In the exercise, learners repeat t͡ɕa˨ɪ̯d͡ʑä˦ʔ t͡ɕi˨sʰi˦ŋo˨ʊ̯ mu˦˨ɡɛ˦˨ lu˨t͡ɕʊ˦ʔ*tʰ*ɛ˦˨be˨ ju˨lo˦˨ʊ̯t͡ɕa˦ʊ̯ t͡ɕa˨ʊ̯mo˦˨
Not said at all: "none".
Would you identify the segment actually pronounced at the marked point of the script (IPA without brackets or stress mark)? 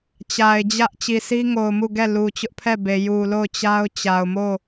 pʰ